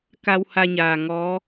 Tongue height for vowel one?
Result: low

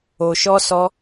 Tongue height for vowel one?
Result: mid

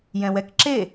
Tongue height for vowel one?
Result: mid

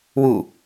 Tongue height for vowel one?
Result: high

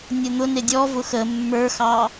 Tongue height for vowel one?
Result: mid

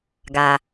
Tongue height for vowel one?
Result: low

